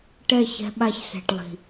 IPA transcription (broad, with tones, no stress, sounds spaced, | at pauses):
ʈ ɛ˦˨ ç ɛ̤˧ ɓ a˧ ç s ɛ̤˨ ʈ lˠ i̤˨